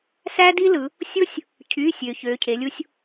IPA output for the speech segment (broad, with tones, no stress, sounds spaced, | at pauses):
s æ˥ d i˥ l ɯ˩˧ | sʲ o˥ sʲ | cʰ y˩˧˩ sʲ ø˩˧ ç ø˩˧˩ cʰ e˩˧ lʲ u˥ sʲ